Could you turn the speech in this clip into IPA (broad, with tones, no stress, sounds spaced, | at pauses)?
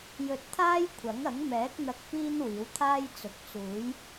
j ɵ˧ t̚ t̪ʰ aː˥ j kʷʰ ɐ˨˥ ŋ ɐ˨˥ ŋ m ɛː˨˥ k̚ n̪ ɐ˧ k̚ p iː˥ n w iː˨˥ w t̪ʰ aː˥ j t͡s ʊ˨˥ k̚ t͡s uː˨˥ j